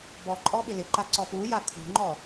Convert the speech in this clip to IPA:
b ɔ ǃʼ ɔ ɓ ɪ l ɪ ǃ a ǀ ɔ p u j a kʰ ṳ ŋ͡ǃ ɔ

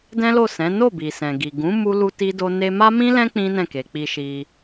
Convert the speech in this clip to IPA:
d ɛ̃˦ l o˦˨ s ɛ̃˨˦ n o˦˨ b i˨ s ɛ̃˨ ɡ i˨ ɡ ũ˨˦ m u˦ l u˦ t i˦ d o˦ n e˦ m a˦ m ĩ˦ l ɛ̃˦ k͡p ĩ˦ n ɛ̃˦˨ k e˨ k͡p i˧ ʃ i˧

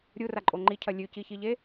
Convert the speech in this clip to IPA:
ɾʲ u r a ǃʼ o ŋ͡ǃ i cʰ ɐ lʲ ʉ c i ç i ʎ e

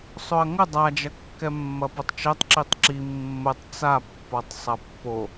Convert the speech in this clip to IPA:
sˤ o ɐ̯ ŋ ə dˤ a d͡ʒ ɐ kː ɛ mː ɐ p o tˤ t͡ʃ ɛ tˤ ǁ i tˤ ǁ i mː ə tˤ t͡s a pː ɔ tˤ sˤ ɐ pː o

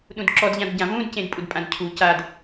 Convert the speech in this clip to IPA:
ɗ ũ d ǁ ɔ d ʎ ã d ɟ ã v ũ d c ẽ d pʼ u d pʼ ã d cʰ u c a d

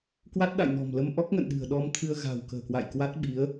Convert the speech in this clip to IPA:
k w a˦˥ t̚ ɗ a̰˧˨ j n ɔ̤˨˩ m l ə˧ m ʔ ɔ˦˥ k̚ ŋ ə̰˧˨ n ɗ ɨ̤˨˩ ə̯ ɗ ɔ˧ m t̪ʰ ɨ˧ ə̯ ɣ a̤˨˩ w k ə̤ː˨˩ k w a̰˧˨ j k w a˦˥ t̚ ɓ i˨˦ ə̯

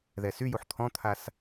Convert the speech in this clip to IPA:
ð ɛ s y j u ħ t̪ʰ ɔ̃ t̪ʰ a s

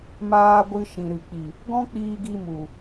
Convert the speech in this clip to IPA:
m aː˧ ɡʷ ɨ˧ ʃ ĩ˨ ɾ ɨ˨ k͡p i˨ | ɡ ɔ̃˦ k͡p iː˧ ɡ i˧ m u˨

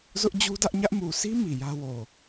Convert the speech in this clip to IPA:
z ʊ˦ ʔ d͡ʑ u˦ d ä˦ ʔ ɲ ä˦ ʔ m u˨ sʰ i˦ m i˨ j ä˦ w o˨

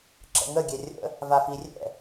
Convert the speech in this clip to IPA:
ǁ ə̰ ŋ ə ɡʲ ɛ rʲ ə̰ | v a f i rʲ ɛ̰

